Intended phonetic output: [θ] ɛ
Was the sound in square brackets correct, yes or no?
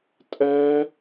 no